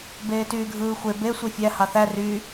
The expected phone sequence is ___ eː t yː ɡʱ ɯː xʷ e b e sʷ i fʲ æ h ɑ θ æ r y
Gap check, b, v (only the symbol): b